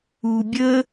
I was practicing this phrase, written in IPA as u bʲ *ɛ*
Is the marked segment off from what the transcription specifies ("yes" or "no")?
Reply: yes